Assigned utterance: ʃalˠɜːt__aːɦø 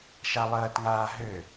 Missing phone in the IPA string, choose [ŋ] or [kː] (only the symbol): ŋ